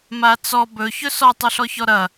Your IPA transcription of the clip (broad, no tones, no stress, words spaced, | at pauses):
mat͡sɔ bɵ çɵsɔ tˤɵɬɔçɔɾɐ